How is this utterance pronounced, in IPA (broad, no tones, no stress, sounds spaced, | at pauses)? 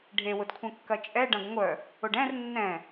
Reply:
ɖʱ e w ʊ d kʷʰ ɛ̃ kː ɐ t͡ʃʼ ɛ ɖ ɐ̃ ɡ ŋʷ œ | ʊ ɖ ɛ̃ r nː ɛ̃